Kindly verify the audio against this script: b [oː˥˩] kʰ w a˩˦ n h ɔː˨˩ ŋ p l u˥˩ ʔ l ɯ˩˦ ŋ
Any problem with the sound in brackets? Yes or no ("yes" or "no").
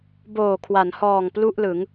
yes